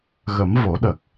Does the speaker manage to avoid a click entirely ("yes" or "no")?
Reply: yes